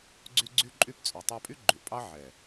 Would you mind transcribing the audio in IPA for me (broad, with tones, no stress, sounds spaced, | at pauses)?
ɡ͡ǀ y˦ ɡ͡ǀ y˦ ǃʼ y˦ p t͡sʼ ʉ˨ tˤ æ˧ pʼ y˦ ɡ͡ǃ ʉ˨ ʔ pʼ ɑ˦ ʕ ɛ˨